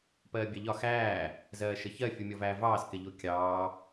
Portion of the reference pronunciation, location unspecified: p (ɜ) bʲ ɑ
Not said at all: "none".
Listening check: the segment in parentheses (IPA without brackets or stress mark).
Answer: ɜː